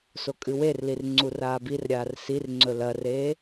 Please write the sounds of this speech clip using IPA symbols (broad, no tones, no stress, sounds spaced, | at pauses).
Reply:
s o kʼ ɨ w e r l i r ŋ͡ǀ u r aː b i r ɾʲ aː r s i r ŋ͡ǀ ɵ l ɐ r eː